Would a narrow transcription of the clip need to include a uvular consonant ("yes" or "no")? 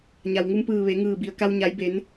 no